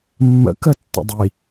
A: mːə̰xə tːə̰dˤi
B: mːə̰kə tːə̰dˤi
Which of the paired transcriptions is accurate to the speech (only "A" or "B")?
B